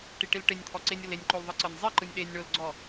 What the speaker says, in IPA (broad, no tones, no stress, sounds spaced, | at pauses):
ʈ i ʈ i l ʈ e nʲ t̪ʰ ɔ ǀ e nʲ ɤ l e nʲ ǃ o l ðˤ ɯ ǀ ɤ nʲ zˤ i ǃ ɯ nʲ ɗ e nʲ ɳ o l ɡ͡ǀ ɔ